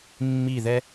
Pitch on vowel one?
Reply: falling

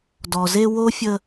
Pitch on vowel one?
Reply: low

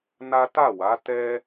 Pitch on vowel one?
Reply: high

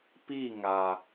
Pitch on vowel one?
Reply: falling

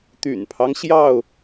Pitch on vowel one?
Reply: low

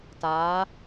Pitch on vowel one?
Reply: rising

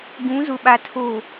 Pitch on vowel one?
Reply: rising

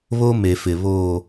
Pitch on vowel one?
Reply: high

